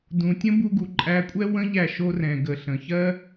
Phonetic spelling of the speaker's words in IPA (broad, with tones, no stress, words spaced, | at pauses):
dũ˨tʲə̃˦ bu˧ɡu˨ǃʼæ˧kʷʼɛ˦ wə̃˦ʎæ˧ʃo˧rɛ̃˨ ɡə˨ ɬə̃˨çɜ˦